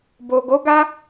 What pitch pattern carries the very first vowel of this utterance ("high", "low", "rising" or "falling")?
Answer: low